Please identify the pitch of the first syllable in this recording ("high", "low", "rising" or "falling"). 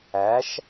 rising